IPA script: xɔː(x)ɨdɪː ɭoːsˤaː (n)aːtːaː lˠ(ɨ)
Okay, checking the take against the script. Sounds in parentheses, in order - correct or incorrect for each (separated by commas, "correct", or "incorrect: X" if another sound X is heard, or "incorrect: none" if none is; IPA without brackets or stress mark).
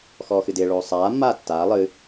correct, incorrect: mː, correct